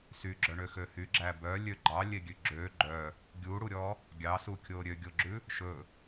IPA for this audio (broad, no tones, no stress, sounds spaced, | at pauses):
s y ɡ͡ǁ œ ɳ ø x ø h y ɡ͡ǁ æ b œ lʲ ø ɡ͡ǃ ɑ lʲ e ɡʲ ʉ ɡ͡ǁ ø ɡ͡ǃ œ | ɡʲ u ɽ u ɾʲ ɔ | ɡʲ ɑ s u kʲ o ɾʲ ø ɡʲ o ɡ͡ǁ ʉ | ʃ ɵ